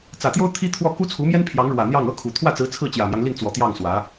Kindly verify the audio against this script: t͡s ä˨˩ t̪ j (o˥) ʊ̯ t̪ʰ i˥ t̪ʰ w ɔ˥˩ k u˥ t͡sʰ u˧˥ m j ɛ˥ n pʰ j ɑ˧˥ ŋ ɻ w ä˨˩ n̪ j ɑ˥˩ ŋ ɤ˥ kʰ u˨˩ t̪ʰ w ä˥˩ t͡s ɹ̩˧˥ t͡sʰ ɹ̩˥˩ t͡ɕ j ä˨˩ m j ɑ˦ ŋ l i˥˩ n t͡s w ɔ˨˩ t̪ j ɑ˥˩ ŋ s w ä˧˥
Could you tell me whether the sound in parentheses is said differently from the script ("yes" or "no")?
no